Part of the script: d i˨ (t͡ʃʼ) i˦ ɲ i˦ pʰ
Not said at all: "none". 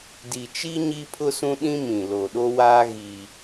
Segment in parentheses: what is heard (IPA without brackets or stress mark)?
t͡ʃ